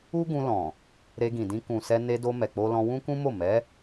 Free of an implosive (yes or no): yes